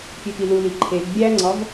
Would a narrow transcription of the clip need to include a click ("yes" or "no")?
yes